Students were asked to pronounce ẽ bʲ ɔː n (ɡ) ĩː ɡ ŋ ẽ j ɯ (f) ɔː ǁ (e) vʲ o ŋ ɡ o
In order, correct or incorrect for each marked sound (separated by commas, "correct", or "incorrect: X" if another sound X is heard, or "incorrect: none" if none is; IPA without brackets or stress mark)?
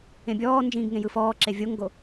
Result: incorrect: d͡ʒ, correct, correct